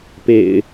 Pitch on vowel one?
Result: low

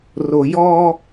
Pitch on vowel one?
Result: low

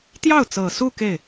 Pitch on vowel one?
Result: falling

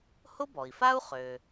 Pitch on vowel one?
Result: high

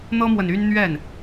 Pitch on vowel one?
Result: high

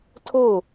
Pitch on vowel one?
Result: falling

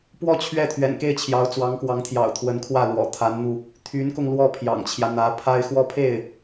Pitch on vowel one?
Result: falling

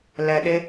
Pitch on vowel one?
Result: low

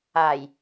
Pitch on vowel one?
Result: low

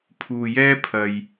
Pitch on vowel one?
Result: low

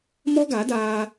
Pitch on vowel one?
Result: high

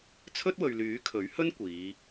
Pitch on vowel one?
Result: high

